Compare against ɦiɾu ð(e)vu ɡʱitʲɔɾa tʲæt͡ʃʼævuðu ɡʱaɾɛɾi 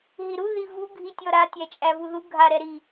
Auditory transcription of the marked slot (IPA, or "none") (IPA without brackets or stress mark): i